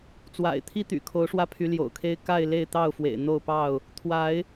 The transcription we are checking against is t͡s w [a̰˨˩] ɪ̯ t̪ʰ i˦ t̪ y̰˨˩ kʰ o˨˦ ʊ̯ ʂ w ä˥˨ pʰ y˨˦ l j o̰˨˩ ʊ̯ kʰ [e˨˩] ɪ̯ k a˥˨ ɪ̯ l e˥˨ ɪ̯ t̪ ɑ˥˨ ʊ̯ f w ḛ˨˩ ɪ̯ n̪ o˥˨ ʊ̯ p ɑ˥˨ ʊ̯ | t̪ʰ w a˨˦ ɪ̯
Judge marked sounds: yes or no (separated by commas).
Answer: yes, no